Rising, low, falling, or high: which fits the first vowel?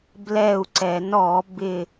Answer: falling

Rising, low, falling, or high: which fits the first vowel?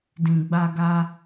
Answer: low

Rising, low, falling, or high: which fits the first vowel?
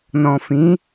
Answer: low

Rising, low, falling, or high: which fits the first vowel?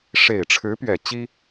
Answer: low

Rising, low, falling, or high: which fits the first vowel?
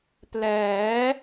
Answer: rising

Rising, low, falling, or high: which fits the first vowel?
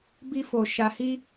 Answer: high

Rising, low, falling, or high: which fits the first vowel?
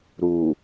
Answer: low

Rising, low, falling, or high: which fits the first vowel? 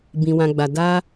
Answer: low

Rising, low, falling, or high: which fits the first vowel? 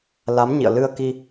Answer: rising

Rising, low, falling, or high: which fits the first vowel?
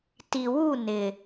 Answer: low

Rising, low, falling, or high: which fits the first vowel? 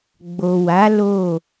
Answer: low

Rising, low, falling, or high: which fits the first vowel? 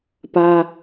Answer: high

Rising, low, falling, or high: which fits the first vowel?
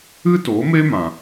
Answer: high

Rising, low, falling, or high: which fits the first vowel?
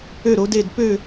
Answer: falling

